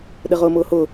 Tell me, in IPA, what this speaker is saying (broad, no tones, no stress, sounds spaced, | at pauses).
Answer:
ɗ ɘ ʁ ʊː m ʊː h ʊ